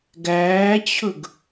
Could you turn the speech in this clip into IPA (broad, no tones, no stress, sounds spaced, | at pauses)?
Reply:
ɡ æː t͡ɕʰ ɵ ɡ